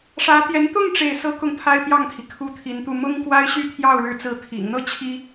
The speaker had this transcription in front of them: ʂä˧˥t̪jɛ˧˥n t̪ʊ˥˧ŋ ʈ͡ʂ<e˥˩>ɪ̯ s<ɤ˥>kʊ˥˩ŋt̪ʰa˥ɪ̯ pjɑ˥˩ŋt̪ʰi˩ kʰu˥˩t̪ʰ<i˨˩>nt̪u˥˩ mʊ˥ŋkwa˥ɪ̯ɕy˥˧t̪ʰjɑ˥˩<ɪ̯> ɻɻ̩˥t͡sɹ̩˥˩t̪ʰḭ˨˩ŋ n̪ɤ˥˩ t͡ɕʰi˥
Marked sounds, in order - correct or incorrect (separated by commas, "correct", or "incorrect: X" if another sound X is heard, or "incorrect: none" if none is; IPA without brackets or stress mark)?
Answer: correct, correct, incorrect: i˧˥, incorrect: ʊ̯